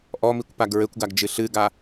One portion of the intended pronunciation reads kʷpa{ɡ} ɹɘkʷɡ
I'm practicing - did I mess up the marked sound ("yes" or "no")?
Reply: no